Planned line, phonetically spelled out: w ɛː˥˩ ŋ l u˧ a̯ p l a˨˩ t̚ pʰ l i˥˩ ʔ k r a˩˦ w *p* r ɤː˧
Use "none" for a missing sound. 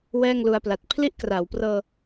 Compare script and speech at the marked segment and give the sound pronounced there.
p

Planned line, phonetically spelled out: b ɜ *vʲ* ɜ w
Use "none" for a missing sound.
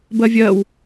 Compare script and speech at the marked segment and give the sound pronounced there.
vʲ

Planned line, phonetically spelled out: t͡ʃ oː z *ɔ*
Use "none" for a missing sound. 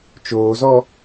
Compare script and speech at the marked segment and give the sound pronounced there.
ɔ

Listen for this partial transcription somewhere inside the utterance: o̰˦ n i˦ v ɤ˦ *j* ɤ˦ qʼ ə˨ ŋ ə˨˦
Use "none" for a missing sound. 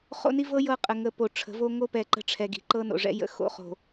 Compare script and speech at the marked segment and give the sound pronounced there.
j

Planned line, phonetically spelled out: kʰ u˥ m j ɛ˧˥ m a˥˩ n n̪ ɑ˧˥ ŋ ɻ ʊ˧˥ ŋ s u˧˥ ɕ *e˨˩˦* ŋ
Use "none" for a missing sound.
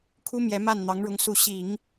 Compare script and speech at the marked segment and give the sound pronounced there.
i˨˩˦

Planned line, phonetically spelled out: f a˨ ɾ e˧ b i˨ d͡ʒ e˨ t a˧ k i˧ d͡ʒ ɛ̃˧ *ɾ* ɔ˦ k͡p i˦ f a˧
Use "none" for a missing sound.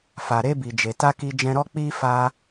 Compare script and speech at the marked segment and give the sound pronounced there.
ɾ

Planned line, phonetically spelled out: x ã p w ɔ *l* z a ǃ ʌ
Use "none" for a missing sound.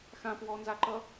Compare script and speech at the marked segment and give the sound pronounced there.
n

